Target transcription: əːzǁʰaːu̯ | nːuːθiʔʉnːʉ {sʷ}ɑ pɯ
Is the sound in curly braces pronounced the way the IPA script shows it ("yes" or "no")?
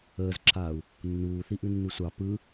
yes